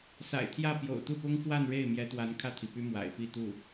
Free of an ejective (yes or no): yes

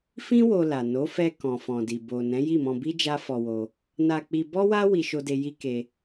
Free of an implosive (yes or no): yes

